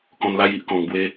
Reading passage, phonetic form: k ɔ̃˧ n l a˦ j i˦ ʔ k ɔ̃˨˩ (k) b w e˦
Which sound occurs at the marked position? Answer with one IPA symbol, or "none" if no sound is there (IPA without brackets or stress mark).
ŋ